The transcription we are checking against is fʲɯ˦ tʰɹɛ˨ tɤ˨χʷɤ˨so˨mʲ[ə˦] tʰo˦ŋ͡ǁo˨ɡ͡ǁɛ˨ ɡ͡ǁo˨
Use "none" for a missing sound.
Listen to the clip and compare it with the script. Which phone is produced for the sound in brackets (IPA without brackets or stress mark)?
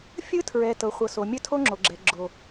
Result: ə˦˨